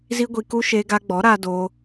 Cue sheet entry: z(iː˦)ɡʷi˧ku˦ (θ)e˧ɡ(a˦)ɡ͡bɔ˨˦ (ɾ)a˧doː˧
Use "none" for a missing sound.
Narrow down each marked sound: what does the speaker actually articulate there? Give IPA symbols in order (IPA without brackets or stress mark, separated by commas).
i˦, ʃ, a˧, ɾ